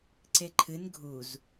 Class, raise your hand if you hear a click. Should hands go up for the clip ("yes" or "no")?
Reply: yes